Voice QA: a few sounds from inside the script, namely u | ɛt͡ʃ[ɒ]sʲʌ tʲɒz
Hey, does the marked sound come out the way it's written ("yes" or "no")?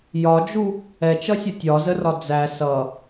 no